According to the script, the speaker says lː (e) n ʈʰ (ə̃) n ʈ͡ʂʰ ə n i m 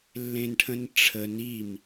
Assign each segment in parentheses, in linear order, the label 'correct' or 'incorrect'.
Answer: incorrect: ẽ, correct

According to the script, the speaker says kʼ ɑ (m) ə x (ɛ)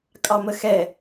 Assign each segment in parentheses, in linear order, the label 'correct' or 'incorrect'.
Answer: correct, correct

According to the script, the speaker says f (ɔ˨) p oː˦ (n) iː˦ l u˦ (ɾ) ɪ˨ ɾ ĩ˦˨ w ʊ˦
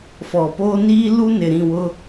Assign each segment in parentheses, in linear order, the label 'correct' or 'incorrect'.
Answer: correct, correct, incorrect: n

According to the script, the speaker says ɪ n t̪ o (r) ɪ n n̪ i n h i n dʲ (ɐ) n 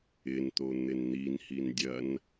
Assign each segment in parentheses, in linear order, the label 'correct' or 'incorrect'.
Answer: incorrect: n̪, correct

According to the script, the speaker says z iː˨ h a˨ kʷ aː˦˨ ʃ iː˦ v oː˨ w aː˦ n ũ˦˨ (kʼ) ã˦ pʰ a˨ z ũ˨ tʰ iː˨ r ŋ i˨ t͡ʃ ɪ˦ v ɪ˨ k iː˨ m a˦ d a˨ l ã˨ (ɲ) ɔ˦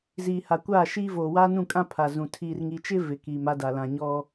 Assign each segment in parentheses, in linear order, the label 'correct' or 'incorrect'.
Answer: correct, correct

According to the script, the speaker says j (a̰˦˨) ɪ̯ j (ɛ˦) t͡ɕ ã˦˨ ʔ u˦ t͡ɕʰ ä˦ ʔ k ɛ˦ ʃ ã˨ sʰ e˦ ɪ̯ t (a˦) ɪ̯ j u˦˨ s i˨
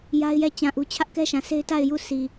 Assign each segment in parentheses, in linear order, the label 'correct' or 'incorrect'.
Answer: incorrect: a˦, incorrect: ɛ˦˨, incorrect: a˦˨

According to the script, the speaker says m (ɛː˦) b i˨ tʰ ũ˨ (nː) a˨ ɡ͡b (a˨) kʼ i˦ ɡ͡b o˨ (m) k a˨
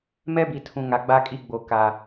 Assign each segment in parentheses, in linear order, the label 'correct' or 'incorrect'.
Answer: incorrect: ɛ˦, incorrect: ŋ, incorrect: a˦, incorrect: none

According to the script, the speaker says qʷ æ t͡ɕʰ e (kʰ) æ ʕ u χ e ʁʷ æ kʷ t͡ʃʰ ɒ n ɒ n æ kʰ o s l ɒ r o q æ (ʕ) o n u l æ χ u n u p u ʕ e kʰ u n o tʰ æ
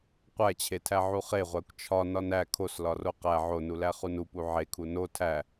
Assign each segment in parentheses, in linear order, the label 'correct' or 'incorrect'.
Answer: incorrect: tʰ, correct

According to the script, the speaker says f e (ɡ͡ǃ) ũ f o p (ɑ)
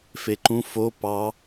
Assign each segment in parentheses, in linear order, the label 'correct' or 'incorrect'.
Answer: incorrect: ǃ, correct

